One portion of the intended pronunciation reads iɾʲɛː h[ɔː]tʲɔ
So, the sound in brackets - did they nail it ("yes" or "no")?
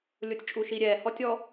no